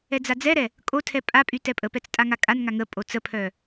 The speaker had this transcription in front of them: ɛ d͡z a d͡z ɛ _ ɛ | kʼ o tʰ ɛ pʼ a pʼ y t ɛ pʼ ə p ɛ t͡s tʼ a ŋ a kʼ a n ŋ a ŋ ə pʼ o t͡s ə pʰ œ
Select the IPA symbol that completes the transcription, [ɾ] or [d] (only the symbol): ɾ